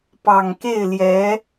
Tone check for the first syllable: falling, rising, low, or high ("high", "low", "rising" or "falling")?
low